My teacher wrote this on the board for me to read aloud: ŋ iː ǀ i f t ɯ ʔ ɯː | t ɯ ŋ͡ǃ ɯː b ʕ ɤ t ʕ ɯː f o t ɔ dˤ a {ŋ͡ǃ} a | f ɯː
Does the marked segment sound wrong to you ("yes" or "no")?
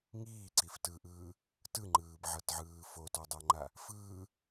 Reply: no